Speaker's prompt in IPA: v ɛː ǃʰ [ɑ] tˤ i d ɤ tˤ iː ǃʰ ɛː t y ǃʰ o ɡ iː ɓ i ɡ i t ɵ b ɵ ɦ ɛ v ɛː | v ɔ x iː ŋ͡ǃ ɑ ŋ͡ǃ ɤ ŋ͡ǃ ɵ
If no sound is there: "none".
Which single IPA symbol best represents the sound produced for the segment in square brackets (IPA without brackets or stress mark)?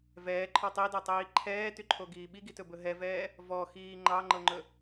ɔ